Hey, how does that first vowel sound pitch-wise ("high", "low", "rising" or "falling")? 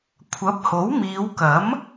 rising